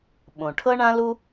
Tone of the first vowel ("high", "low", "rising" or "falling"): low